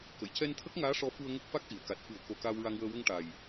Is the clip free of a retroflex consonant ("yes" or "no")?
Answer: no